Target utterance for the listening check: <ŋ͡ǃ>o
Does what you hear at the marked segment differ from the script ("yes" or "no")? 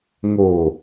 yes